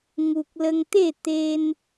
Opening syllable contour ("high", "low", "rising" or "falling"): low